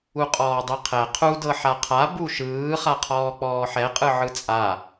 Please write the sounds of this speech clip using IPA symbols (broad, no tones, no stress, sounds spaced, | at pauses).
u qʼ ɔː dˤ i qʰ ɛ qʰ u d ɤ ħ a qʰ a b u ʃ ɯː χ a qʰ ɔː k͡p ɔː ħ ɛ qʼ ɯ ʕ ɯ t͡sʼ a